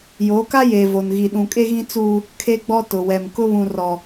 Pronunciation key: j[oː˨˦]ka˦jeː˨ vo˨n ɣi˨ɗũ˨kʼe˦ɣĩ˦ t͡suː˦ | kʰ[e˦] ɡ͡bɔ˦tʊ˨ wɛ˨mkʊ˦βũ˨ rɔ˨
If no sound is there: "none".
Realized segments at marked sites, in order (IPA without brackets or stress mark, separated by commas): oː˨˦, e˦